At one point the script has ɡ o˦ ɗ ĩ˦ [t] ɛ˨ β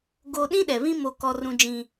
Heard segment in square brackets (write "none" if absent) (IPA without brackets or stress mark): ɗ